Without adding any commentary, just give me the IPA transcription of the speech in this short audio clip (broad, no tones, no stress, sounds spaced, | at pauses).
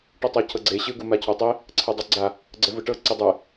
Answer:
ʈ ɯ tˤ ɛ cʰ ɤ ɡ͡ǀ e ɕ ɯ ɡ u m a cʰ ɔ tˤ i | ǀʰ ɛ dˤ e ɡ͡ǀ a | ɡ͡ǀ ɛ v ɯ ʈ ɤ ǀ i dˤ ɛ